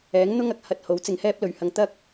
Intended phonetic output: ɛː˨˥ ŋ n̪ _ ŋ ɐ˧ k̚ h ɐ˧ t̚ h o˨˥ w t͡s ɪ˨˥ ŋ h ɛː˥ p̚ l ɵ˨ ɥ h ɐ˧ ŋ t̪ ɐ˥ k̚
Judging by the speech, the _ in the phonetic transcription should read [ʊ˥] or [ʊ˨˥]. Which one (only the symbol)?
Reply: ʊ˥